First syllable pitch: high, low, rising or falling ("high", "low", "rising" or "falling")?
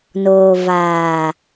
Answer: low